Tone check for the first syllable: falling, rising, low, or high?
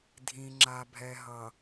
low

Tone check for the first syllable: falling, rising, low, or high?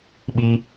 high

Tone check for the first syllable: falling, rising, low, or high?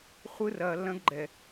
high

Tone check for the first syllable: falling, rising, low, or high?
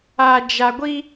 low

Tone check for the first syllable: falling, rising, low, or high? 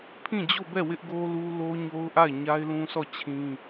falling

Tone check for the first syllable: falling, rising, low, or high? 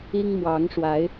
high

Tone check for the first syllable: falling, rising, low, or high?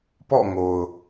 falling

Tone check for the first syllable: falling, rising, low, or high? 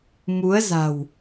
rising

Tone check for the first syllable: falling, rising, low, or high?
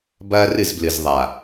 high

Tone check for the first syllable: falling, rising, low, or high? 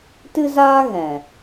high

